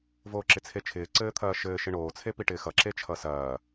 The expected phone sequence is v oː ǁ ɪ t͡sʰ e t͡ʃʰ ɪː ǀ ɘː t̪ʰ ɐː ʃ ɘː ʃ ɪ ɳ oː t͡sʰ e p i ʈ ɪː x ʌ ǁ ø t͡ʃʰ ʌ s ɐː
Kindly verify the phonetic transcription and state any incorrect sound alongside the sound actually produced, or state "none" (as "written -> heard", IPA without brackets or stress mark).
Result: ø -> e